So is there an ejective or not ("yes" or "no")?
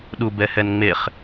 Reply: no